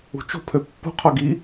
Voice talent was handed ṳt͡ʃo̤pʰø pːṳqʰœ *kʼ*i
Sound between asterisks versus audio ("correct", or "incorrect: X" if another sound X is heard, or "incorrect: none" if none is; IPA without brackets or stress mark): incorrect: ɡ